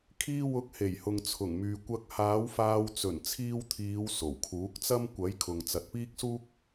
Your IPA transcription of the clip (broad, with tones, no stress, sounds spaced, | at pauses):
kʰ iː˧ w ʊ˨˥ k̚ h e˨˩ j h ʊ˨ ŋ t͡sʰ ʊ˨˩ ŋ m yː˨ kʷ ɐ˧ k̚ h aː˨˥ w f aː˧ w t͡s ɵ˨˩ n t͡sʰ iː˧ w t̪ʰ iː˨˧ w s o˨˩ w kʰ uː˨˥ k̚ t͡s ɐ˥ m kʷ ɐ˨˥ j kʰ ʊ˨ ŋ t͡s ɐ˨ t̚ p iː˥ k̚ s uː˥ k̚